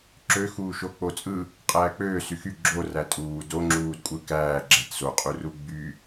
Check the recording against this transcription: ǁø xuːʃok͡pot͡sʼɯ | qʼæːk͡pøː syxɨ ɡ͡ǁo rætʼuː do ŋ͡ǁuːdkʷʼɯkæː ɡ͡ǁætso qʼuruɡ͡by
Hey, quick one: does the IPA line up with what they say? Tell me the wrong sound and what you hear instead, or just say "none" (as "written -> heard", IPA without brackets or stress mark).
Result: ɨ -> y